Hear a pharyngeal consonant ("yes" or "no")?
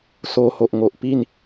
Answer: no